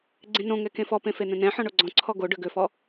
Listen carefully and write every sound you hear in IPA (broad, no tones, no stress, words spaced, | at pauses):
ɡ͡ǀẽnõŋɛ kẽfɔpẽ fen̪ɛ̃nɛ̃ħɔ̃ ɳoɡ͡ǀɔ̃ǀʰɔ ɡo ɖøɡøfɔ